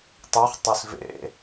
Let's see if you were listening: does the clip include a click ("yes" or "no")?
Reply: no